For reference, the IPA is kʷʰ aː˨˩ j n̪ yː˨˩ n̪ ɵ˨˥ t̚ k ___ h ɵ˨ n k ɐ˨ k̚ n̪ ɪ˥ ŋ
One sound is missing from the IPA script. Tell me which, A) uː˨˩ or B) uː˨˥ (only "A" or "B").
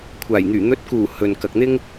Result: A